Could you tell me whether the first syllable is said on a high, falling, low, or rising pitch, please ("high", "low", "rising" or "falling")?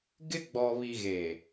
high